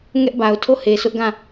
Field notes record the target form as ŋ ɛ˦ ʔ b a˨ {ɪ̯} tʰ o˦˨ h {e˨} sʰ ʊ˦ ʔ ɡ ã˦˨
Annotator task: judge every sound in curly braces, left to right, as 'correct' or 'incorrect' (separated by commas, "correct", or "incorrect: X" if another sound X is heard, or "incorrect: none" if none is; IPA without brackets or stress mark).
incorrect: ʊ̯, correct